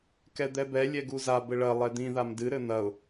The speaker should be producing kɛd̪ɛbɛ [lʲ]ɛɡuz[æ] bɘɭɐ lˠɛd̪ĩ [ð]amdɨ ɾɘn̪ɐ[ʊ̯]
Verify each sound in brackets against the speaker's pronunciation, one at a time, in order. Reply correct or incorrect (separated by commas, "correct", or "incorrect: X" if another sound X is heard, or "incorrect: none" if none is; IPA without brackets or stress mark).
correct, incorrect: a, correct, correct